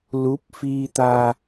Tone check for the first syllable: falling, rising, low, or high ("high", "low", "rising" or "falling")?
rising